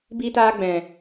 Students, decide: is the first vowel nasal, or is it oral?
oral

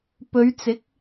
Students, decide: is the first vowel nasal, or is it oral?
oral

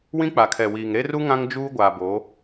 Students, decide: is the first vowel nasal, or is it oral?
nasal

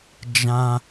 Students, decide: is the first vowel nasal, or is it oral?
nasal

